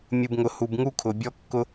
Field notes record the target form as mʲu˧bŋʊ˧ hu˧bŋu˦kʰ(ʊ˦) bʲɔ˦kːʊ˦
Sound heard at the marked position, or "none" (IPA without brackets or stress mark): ʊ˧